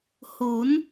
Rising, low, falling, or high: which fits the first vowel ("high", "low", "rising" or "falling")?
rising